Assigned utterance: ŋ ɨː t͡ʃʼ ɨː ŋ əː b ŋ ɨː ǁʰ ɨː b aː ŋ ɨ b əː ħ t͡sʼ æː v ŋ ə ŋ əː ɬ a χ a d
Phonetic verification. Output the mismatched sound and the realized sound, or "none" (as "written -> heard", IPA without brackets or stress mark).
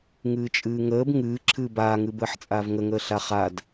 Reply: æː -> aː